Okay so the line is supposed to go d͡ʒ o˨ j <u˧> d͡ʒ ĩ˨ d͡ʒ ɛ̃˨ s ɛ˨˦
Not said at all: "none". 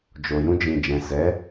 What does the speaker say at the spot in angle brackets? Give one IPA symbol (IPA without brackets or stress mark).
ũ˧